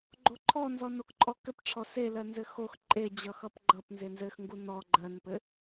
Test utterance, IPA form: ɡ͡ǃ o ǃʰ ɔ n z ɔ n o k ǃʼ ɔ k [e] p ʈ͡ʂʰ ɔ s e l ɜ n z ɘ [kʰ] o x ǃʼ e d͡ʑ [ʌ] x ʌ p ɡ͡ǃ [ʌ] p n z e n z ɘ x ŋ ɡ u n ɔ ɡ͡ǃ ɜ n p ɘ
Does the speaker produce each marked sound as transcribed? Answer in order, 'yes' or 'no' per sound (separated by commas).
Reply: no, no, yes, yes